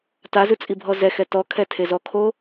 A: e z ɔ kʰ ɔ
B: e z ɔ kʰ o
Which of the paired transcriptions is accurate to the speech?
B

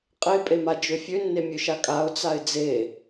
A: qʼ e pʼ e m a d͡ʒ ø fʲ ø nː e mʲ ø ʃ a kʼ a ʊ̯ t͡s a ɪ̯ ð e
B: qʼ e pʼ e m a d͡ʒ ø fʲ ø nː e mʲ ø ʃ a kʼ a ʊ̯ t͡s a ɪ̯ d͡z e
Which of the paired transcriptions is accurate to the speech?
B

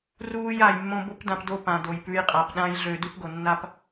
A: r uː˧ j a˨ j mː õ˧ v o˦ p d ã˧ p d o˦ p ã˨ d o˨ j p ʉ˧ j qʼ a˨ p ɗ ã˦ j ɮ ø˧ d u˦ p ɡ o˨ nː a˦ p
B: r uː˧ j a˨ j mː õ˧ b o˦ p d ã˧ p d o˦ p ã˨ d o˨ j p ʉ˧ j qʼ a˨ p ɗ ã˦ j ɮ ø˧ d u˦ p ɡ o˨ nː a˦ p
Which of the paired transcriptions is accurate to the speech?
B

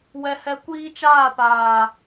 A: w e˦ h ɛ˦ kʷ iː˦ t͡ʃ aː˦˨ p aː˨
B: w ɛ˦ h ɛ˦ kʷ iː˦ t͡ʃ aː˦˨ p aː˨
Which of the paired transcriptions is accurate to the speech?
B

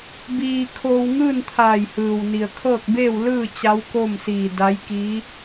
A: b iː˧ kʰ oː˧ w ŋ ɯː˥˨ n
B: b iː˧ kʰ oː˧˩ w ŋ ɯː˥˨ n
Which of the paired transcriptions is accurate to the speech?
A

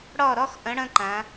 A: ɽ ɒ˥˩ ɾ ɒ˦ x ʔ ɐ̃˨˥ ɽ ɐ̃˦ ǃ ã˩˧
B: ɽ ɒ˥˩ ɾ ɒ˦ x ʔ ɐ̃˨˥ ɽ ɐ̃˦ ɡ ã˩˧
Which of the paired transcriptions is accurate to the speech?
A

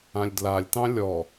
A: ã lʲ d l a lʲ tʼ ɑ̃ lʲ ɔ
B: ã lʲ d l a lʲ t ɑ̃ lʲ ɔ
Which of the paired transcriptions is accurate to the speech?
B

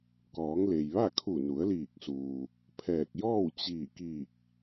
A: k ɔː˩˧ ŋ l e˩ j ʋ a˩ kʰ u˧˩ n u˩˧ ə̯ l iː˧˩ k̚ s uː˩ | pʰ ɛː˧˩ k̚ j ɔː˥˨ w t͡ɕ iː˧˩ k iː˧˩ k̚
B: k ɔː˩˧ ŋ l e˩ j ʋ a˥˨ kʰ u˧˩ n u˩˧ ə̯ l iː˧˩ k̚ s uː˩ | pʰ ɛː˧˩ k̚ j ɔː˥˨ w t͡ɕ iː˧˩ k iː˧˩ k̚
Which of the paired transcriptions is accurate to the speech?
B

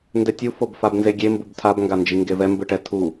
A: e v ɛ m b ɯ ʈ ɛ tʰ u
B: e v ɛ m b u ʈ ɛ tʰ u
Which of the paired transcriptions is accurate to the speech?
A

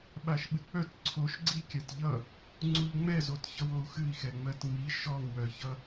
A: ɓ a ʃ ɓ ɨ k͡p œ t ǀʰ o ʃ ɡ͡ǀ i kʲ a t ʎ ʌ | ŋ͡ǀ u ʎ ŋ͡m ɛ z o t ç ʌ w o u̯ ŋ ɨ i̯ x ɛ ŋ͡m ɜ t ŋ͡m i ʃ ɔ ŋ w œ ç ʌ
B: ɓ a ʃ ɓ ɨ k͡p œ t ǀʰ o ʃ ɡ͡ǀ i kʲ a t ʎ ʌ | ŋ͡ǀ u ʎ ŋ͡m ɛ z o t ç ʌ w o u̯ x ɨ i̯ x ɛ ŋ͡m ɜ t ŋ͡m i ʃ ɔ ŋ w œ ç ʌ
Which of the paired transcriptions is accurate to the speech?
B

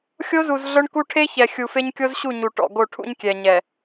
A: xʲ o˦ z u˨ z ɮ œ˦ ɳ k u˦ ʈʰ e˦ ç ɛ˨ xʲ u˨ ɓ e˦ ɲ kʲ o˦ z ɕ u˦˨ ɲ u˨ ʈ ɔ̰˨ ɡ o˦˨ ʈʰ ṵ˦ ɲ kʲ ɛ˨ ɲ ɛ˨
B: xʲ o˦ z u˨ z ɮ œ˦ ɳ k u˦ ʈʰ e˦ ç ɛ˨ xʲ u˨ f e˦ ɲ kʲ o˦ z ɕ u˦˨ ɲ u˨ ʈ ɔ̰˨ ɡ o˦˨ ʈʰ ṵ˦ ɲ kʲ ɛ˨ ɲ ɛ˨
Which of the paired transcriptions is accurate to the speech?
B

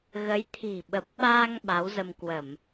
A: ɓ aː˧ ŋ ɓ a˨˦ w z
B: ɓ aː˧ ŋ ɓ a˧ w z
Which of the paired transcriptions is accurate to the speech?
A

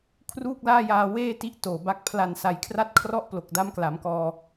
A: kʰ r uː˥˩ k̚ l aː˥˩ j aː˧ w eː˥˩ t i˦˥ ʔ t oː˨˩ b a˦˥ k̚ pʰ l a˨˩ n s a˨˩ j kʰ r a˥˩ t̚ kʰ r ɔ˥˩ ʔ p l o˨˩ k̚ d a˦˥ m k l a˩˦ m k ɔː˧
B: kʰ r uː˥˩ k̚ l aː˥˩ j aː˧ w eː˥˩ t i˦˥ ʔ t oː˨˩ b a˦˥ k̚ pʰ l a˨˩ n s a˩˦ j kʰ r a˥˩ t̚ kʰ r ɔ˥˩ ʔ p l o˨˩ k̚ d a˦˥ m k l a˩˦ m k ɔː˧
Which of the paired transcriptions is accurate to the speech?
B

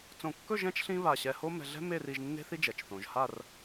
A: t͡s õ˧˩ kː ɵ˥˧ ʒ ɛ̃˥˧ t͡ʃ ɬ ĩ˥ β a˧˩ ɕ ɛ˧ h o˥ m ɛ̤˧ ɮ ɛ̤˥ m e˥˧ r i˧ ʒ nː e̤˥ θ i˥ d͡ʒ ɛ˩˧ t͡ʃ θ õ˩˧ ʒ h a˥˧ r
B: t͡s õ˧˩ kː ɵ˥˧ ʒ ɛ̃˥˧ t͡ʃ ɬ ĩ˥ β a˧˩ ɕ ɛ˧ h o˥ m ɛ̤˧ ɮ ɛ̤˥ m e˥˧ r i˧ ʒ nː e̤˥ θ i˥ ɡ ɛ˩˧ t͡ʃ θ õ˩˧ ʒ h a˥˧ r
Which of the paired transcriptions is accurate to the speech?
A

